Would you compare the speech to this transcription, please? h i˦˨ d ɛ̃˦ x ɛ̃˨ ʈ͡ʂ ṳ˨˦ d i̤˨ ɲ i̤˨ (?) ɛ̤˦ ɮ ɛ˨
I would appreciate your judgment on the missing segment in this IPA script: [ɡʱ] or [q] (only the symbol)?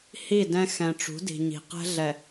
q